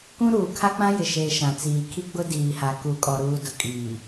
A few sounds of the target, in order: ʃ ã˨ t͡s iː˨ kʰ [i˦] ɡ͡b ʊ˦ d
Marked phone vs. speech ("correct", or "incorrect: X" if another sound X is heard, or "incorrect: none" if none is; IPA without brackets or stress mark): correct